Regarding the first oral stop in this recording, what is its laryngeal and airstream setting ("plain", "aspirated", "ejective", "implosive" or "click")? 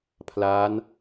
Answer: aspirated